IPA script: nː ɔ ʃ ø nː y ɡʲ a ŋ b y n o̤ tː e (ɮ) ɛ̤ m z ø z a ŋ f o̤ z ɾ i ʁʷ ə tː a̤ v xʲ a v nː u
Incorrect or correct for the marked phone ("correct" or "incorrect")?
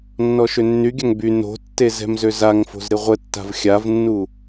incorrect